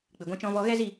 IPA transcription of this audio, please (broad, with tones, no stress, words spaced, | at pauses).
k͡pɨ˨ɡʷã˧t͡ʃɔ̃˧vɔ˧ ɣɛ˦zi˦˨